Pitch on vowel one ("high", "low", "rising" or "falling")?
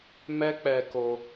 high